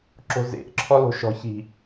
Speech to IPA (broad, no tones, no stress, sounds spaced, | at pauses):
ǁ o̤ z ḛ ʔ ǁʰ ɔ l o̤ ʃ ɔ̤ ç i̤